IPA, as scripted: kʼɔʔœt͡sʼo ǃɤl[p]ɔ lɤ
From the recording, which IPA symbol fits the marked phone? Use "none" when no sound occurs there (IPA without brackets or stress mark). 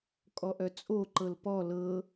p